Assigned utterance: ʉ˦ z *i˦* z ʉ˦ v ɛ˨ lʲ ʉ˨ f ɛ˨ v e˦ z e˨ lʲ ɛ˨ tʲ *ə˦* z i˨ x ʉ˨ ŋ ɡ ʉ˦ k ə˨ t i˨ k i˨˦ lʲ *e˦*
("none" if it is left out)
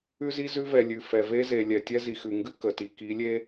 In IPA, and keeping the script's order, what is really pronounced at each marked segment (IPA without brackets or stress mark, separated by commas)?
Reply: i˦, ɛ˦, e˦